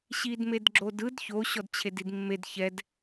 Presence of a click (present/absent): present